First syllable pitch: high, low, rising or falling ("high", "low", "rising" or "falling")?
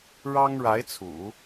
high